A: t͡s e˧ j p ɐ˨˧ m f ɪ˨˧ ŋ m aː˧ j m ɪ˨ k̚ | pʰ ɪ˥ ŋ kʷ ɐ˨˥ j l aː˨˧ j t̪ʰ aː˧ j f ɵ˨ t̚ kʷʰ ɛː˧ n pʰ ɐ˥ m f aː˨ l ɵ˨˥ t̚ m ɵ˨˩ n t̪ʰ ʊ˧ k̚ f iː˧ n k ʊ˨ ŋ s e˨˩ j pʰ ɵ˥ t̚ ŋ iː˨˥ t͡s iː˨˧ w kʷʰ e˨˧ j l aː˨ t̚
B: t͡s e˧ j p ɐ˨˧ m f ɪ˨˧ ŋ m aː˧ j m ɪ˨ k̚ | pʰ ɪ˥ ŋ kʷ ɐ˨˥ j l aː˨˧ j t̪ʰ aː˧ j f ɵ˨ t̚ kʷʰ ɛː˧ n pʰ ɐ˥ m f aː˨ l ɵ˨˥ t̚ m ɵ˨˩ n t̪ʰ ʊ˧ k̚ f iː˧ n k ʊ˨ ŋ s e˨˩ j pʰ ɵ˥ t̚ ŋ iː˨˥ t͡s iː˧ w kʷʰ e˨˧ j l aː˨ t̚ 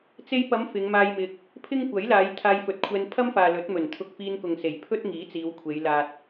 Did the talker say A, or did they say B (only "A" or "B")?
A